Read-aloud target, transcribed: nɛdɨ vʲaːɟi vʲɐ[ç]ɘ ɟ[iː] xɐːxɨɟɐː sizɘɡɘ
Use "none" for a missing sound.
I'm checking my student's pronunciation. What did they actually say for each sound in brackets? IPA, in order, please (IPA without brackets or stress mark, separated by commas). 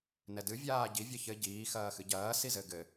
ç, iː